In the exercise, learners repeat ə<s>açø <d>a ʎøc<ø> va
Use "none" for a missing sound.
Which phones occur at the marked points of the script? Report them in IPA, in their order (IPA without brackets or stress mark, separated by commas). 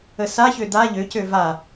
s, d, ø